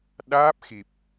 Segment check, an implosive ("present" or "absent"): present